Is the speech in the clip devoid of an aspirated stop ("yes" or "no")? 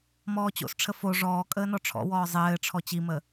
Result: no